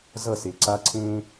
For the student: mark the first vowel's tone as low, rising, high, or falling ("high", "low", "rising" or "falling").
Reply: falling